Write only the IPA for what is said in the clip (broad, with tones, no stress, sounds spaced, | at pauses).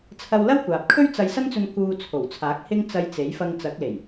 t͡sʰ ɐ˧ w l ɐ˥ w kʷ aː˨ p̚ kʰ ɵ˥ ɥ t͡s ɐ˧ j s ɐ˥ n t͡s ɵ˧ n k uː˧ t͡sʰ o˨˩ w t͡sʰ aː˨˥ k̚ h ɪ˥ ŋ t͡s ɐ˧ j t͡s e˨˥ j f ɐ˧ ŋ t͡s ɐ˨˥ k̚ l e˨˩ j